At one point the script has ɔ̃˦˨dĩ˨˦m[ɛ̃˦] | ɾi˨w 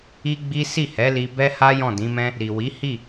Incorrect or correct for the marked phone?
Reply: correct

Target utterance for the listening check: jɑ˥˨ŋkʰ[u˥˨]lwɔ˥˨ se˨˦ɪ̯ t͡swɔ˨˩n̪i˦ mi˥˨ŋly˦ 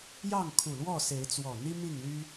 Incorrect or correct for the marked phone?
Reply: incorrect: u˨˩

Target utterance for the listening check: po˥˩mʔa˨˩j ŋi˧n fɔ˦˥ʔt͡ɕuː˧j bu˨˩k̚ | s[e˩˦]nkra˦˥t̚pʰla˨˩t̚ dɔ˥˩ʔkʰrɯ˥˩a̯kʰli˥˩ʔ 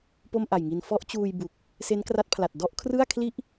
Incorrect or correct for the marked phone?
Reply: incorrect: e˦˥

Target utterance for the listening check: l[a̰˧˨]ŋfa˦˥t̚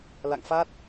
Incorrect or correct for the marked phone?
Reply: correct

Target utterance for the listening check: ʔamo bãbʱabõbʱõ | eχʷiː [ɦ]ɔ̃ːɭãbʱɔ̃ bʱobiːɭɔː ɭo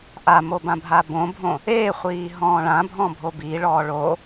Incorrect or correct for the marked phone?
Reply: correct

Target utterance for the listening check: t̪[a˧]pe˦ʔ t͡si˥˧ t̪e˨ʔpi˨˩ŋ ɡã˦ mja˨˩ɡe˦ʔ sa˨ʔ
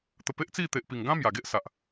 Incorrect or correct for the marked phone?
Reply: incorrect: ə˧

